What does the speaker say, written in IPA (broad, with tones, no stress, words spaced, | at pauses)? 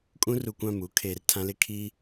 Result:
kʼũ˦ru˨kʷã˦˨muː˦ kʰeː˨rtʰã˦lɪ˦ kʰi˦